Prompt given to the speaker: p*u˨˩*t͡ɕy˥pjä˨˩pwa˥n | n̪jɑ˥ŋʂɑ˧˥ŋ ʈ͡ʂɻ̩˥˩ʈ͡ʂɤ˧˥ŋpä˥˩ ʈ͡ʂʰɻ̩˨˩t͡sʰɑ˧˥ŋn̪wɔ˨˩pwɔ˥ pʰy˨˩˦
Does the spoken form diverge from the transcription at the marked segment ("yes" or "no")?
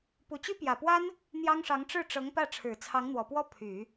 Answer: no